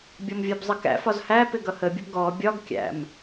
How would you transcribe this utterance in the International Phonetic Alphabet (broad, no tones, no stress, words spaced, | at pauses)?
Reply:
bʲɔmvʲɜbzˤəkæ̰ fɒzhæ pɪɡʌhə bʲəbɡɔ bʲɒɡkʲæ̰m